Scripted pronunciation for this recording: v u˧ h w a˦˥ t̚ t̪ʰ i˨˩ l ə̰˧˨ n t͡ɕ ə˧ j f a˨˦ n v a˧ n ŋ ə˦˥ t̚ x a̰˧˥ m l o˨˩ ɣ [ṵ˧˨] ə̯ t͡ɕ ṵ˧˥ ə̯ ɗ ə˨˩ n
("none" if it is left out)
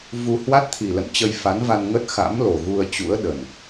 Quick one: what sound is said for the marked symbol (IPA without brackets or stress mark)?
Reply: u˧